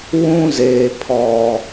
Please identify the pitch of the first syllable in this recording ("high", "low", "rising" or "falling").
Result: high